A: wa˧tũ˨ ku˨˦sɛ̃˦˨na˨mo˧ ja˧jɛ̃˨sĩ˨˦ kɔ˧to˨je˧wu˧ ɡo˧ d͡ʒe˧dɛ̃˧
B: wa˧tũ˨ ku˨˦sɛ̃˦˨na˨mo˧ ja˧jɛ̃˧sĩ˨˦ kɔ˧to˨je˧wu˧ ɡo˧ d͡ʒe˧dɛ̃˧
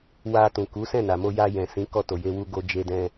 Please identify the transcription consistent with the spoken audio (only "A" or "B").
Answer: A